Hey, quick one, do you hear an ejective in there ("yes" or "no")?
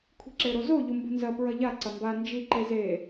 no